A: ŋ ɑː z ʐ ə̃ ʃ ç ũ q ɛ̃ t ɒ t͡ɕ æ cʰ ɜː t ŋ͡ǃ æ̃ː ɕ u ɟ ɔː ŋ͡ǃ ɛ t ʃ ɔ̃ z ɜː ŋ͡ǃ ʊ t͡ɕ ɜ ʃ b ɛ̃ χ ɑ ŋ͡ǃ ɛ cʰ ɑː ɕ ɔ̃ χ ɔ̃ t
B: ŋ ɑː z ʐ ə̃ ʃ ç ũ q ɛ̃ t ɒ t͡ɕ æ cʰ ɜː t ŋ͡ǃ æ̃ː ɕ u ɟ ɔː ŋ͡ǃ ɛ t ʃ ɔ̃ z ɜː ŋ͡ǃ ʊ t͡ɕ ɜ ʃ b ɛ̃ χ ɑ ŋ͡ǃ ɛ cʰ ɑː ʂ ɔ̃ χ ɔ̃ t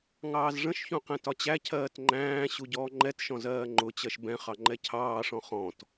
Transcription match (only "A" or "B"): B